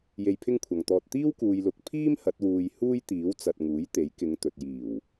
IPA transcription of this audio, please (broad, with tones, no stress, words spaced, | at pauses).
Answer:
je˧jpʰɪ˥ŋkʷʰɐ˨ŋt̪ɔː˧t̚ t̪iː˥wkuː˨jlʊ˨k̚ pʰiː˥m hɐ˨˥t̚wuː˧j huː˥jt̪iː˨˥w t͡sɐ˨t̚ ŋuː˨˥jt̪e˨˥jkɪ˨˧ŋt̪ɵ˨t̚ jiː˨˩w